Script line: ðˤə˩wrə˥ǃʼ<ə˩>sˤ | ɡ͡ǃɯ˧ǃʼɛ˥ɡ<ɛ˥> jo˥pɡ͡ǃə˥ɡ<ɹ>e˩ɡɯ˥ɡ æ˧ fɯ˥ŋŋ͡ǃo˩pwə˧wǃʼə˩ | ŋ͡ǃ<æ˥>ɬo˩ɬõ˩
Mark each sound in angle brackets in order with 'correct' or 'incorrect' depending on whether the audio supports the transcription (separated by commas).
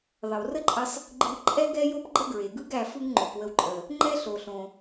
incorrect, correct, correct, incorrect